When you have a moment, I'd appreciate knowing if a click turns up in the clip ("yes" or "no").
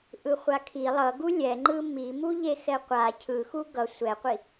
yes